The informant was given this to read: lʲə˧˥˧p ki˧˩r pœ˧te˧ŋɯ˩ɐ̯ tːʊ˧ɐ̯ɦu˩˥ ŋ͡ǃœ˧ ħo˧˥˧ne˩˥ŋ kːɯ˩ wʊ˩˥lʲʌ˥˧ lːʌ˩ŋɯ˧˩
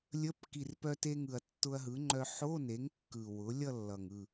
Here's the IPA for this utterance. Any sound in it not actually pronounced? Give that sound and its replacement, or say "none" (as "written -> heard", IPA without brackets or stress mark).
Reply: u˩˥ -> ɯ˩˥